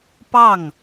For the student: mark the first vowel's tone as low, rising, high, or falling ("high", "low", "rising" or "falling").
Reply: falling